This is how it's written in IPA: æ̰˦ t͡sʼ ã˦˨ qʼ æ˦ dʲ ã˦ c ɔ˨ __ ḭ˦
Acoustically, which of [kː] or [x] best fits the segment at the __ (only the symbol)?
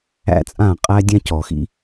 x